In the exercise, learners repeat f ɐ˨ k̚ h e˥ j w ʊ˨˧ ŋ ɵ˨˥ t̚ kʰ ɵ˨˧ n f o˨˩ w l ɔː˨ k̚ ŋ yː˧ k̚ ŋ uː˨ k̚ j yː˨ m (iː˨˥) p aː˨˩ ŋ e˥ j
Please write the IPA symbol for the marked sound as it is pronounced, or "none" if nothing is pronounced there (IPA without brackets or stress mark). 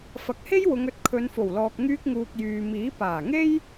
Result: iː˨˥